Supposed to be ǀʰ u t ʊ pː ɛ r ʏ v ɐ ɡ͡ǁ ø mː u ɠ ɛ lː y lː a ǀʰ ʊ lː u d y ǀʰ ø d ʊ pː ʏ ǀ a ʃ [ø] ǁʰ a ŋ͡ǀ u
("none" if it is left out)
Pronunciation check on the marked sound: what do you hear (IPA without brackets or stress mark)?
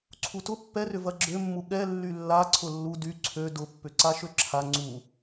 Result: ø